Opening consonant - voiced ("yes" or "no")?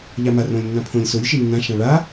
yes